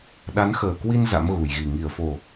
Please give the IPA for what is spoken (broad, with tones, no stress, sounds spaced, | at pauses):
ɗ a˨˦ n x əː˨˩ k w i˧ n z a̰˧˥ m ɣ u˧˩ j ɣ i˨˩ ŋ i˧˩ ə̯ f o˨˩